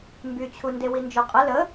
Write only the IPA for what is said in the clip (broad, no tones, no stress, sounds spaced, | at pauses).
m b y t͡ɕʰ u n d e w i n d͡ʒ ø qʼ ə l ə